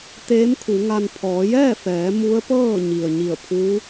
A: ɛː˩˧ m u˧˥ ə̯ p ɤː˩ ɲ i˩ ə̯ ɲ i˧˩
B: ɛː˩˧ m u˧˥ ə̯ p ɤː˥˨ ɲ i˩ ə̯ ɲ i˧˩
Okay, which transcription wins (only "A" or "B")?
B